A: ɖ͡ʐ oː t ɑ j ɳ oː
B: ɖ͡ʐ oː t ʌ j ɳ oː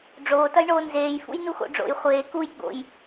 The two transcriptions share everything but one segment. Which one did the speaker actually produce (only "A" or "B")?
B